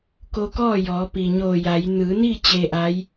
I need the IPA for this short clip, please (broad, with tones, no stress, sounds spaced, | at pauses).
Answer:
k o˧ k ɔː˥˨ j ɔː˩˧ p i˩ ɲ oː˧˩ j a˩˧ j n ɯː˩˧ n iː˥˨ t͡ɕ e˧ ʔ a˧˥ j